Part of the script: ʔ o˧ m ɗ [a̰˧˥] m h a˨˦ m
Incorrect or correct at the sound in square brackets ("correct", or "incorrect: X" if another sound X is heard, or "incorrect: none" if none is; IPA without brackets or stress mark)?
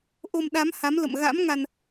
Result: incorrect: a˨˦